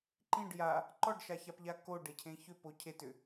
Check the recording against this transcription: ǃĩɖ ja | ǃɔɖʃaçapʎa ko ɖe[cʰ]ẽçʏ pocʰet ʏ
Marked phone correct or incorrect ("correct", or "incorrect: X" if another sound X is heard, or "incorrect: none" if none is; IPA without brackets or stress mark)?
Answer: correct